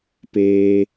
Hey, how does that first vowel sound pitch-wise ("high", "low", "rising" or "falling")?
high